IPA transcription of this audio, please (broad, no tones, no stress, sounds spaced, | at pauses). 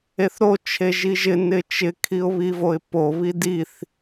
e θ ɾ o t͡ʃʰ e ʒ i ʒ ɪ n ɪ t͡ʃ ɪ kʰ i ʊ̯ β i v o ɪ̯ p o β i d i θ